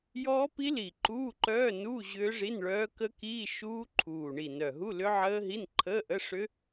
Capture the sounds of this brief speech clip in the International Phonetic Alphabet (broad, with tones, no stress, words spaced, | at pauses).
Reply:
jɔː˦˥pi˦˥li˨˩ ǃuː˧˥˧ǃœː˧˥˧nuː˧˥˧ ʑʏː˦˥ʐi˧˥˧nɭœː˦˥ kə˦˥kiː˧˥˧ ʃuː˦˥ǃʰuː˨˩ɳi˨˩nœ˨˩ ɦu˧˥˧lʏ˦˥ʕəː˦˥ɦi˧˥˧n ǃʰəː˧˥˧ʔə˧˥˧ʂʏ˦˥